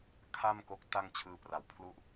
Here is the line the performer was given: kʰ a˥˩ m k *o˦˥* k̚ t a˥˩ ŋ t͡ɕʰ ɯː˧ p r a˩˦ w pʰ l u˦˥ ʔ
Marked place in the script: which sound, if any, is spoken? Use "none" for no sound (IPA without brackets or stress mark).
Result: o˦˥